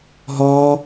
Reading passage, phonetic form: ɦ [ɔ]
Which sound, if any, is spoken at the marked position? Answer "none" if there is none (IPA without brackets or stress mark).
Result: ɔː